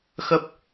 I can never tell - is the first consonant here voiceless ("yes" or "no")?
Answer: yes